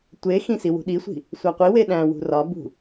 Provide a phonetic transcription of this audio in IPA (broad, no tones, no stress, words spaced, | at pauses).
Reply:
tʷe xĩsi wṳɗisʷi̤ | sʷæqʷi weɗæ̃ wṳrɒbṳ